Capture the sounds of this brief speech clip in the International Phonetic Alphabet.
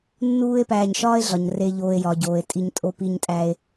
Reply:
nː uː˦ e̯ p æː˨ ɲ ʃ ɒː˥ e̯ ɮ ɒ˩ ɲ r e˨ ʎ oː˨ e̯ j ɒ˩ ɟ oː˩ e̯ tʼ i˨ ɲ tʼ o˨ p i˨ ɲ tʼ æ˨ e̯

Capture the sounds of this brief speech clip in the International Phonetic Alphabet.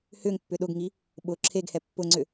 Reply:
h ʏ ŋ pː ʏ ɗ ʊ ɡ ŋ i | ɓ ʊ ǁʰ e ɡ h ɛ pː ʊ ŋ͡ǀ ʏ

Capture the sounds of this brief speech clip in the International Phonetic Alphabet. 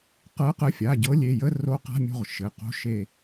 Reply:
q ɤ˨˦ q ə˨˦ fʲ a˩˧˩ ɟ ɤ˨˦ lʲ e˩˧˩ j ə˧˥˧ r o˨˦ q a̤˧˥˧ mʲ o̤˦˨ ʁ ʃ ɘ˩˧˩ q o̤˧˥˧ ʃ e˦˨

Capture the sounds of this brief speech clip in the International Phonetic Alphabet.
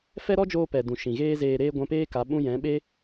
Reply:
f ɛ˦ ɾ ɔ˦ d͡ʒ oː˧ p ɛ˨ d ũ˨ ʃ ĩ˨ ɣ eː˦ z eː˧ ɾ eː˦ ɡʷ ɛ̃˧ p eː˦ k a˨˦ ɓ ũ˧ j ɛ̃˨˦ ɓ e˦

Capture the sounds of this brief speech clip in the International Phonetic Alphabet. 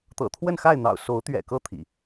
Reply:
t̪ ɤ̰˨˩ t̪ʰ w ə˥˨ n x a˥˨ ɪ̯ n̪ ɑ̰˨˩ ʊ̯ s o˨˦ ʊ̯ t̪ ɥ ɛ̰˨˩ k ɤ˥˨ t̪ʰ ḭ˨˩

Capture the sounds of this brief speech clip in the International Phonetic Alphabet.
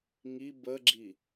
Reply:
ŋ i b ə ɡ͡ǁ i

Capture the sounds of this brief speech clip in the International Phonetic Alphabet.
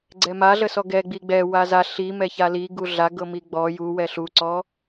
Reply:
ɡ͡ǀ ɛ m a ɮ ə s ɔ ɡ ɛ ɡ͡b i ɡ͡b ɛ w a z a ɬ i m ɛ ç a l i ɡ u ɮ a ɡ ɤ m i ɡ͡b ɔ j u w ɛ ɬ u ǀ ɔ

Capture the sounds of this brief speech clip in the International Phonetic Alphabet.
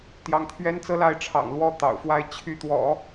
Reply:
t̪ j ɑ˧˥ ŋ t̪ʰ ɥ ɛ˥ n t͡s ɤ˥ l a˥˩ ɪ̯ ʈ͡ʂʰ ɑ̰˨˩ ŋ l w ɔ˥˩ t̪ ɑ̰˨˩ ʊ̯ f w a˥˧ ɪ̯ t͡ɕʰ y˥˩ t̪ w ɔ̰˨˩˦

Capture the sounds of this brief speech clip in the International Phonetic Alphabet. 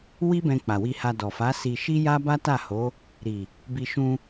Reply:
w i˦ b ɛ̃˧ k͡p a˨ w i˧ h a˧ d ɔ˨ f a˨˦ s i˧ ʃ i˦ j a˦ b a˦ t a˦˨ h o˨˦ | ɾ i˨ | b i˧ ʃ ũ˧

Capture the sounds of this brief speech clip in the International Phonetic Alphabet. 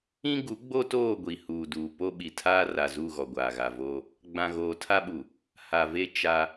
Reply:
ĩ˦ ɡ u˨˦ ɡ͡b o˦ t oː˦˨ ɡʷ i˨ h uː˨ d uː˨ p o˦ ɓ i˨ tʰ aː˦ r a˨ z u˦˨ ɣ ɔ˨ ɡʷ aː˨ ɣ a˨ v oː˦ | ɡ͡b ã˨ ɣ oː˨ tʰ a˦ ɓ u˨ | h a˨ v e˦ t͡ʃ a˦

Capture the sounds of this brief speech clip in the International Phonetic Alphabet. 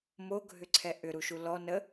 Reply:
m o ɡʱ ʏ ǀʰ ɛ ʔ ʏ ɾ u ʃ u l ɔ n ə

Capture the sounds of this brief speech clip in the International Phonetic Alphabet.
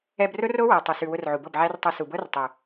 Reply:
ɛ˧ b r ʊ˦ r o˦ w ɤ˨ tˤ ʊ˨ s ʉ˨ w ʊ˧ r ʕ u˨ b ɤ˦˨ b ʕ æ˦ r tˤ ɤ˧ s u˨ b ɤ˦ r tˤ ʊ˨

